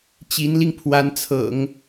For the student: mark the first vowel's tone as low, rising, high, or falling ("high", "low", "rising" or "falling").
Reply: rising